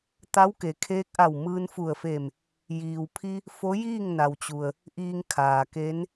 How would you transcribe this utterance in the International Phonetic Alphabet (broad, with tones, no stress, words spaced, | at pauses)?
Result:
t̪a˧˥wke˩kʰeː˧˥k̚ʔa˧˩w mɯː˧nfu˧˩ə̯fe˧˩m | jiː˩wpʰi˧ | fo˧˥jiː˥˨ŋna˩wt͡ɕu˩ə̯ | ʔiː˧ŋkʰaː˩ke˧˥n